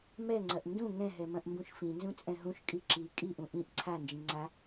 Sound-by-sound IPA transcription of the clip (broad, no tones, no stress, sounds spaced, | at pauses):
m ɛ ŋ͡ǀ ɐ ʔ n d ũ ŋ ɛ̃ ɦ ɛ m ɐ̃ ʔ m b ũ ʃ f ĩ n z ũ t͡sʼ ɛ̃ ɦ ũ ʃ kʼ i ǁ i kʼ i ʔ ũ ʔ ĩ ʔ ǀʰ a n d͡ʒ ĩ ŋ͡ǀ a